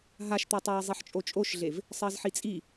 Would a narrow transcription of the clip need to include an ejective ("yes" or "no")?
yes